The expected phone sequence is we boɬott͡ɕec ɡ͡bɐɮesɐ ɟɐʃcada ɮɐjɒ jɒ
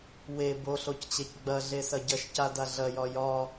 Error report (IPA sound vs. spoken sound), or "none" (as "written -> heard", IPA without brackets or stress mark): t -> c